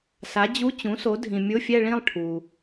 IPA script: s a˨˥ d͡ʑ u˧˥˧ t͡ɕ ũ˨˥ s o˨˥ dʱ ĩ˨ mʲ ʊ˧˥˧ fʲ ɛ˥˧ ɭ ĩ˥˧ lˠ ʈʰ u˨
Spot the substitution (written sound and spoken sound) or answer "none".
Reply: none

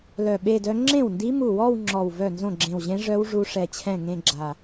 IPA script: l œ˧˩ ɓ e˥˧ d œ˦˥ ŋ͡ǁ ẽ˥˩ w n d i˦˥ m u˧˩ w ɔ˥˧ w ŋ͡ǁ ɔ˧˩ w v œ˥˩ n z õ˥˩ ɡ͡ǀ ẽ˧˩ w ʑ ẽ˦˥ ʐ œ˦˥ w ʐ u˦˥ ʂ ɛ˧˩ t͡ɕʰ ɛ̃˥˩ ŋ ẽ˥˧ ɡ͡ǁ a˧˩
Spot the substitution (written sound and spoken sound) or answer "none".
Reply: ɡ͡ǀ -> ɡ͡ǁ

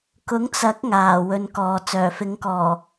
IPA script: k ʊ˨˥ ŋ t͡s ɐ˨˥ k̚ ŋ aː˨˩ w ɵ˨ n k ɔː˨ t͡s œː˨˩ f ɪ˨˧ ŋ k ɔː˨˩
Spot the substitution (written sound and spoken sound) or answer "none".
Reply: none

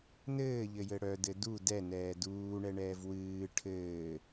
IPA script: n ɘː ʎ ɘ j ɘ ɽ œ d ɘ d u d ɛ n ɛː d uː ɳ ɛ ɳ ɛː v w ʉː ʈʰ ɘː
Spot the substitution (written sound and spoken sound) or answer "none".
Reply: ʉː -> ɨː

